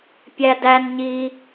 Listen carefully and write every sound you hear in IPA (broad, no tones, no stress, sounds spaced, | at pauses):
pʲ æ d æ n ɲ i